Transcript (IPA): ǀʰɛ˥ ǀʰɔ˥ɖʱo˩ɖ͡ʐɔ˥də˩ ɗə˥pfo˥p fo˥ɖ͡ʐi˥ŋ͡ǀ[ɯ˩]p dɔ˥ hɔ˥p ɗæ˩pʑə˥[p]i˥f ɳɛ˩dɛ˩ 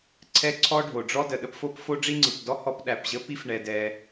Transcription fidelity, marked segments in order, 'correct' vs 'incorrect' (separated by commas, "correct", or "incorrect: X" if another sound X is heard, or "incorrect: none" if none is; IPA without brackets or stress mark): correct, correct